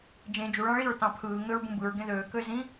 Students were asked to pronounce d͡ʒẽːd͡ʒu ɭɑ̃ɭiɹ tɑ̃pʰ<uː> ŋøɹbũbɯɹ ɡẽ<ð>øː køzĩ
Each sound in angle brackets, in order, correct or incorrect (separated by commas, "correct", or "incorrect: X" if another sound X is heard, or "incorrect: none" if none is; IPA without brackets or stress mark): incorrect: ɯː, correct